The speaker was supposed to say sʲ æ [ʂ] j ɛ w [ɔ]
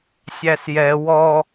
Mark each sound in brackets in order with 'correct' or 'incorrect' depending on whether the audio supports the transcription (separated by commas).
incorrect, correct